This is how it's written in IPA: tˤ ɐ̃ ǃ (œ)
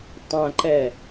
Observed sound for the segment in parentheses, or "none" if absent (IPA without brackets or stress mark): ɛ